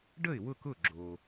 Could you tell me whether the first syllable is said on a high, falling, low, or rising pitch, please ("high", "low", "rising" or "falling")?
falling